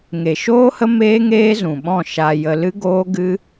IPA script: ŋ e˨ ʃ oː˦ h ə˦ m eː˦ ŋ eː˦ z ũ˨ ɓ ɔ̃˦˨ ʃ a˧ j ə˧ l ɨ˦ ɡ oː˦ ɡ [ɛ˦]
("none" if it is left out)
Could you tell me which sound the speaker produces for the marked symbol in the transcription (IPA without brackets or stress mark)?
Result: ɨ˦